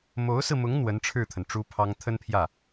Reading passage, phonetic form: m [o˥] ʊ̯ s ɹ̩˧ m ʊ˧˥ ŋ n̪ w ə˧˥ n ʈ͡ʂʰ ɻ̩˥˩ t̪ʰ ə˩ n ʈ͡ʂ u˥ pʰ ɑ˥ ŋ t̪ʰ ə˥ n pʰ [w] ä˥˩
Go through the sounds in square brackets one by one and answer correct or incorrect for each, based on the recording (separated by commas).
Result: incorrect, incorrect